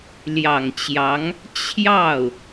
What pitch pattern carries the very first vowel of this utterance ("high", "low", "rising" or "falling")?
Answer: low